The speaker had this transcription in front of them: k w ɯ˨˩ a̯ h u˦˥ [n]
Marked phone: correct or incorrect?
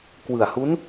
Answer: correct